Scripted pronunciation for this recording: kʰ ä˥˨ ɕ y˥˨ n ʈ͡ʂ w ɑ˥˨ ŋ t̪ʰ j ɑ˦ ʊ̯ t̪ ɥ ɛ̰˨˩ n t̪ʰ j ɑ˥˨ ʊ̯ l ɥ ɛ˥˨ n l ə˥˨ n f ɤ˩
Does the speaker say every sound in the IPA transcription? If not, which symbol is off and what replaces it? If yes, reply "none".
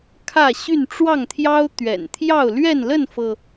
none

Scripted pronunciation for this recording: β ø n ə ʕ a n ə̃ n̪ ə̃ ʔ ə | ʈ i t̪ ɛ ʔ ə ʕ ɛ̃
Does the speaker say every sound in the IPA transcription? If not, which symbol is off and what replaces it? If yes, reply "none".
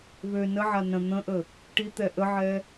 ɛ̃ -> ɛ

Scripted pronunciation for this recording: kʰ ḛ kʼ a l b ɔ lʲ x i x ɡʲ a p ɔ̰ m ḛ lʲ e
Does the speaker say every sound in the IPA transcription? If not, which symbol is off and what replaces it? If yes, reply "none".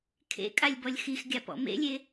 l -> lʲ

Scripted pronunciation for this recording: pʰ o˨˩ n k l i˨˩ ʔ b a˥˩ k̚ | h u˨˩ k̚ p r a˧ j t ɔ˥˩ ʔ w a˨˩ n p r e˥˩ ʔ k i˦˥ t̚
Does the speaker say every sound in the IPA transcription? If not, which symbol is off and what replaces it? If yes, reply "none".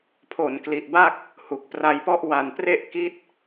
t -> p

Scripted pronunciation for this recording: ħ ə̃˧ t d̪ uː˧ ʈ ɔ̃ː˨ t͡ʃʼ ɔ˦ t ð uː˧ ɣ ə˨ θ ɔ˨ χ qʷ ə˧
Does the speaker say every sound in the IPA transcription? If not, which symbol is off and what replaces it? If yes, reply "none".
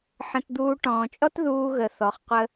none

